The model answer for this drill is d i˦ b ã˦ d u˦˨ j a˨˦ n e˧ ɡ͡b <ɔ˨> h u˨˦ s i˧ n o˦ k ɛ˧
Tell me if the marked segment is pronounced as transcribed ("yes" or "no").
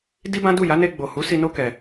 no